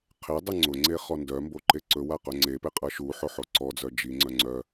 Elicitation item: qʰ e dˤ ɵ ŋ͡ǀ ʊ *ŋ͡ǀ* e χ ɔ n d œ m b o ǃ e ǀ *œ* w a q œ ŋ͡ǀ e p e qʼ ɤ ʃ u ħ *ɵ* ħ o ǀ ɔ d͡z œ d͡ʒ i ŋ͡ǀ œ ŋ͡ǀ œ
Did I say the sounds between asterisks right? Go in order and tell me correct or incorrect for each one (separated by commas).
correct, incorrect, incorrect